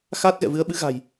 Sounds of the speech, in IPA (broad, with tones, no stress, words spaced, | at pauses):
xaː˦˥t̚ ɣɛ̰˧˨vɨ˨˦ə̯ɓɨ˨˦ ɣa̤˨˩j